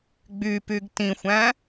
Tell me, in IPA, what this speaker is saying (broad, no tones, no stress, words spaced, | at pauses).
ɡ͡bypyɡ tĩxʷæ̃